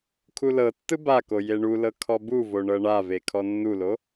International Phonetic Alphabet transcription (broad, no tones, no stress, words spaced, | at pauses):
kʰulɤtːɯ bako jeɳulɤ kʰɔbuvo ɳɤɳave kʰɔnːulo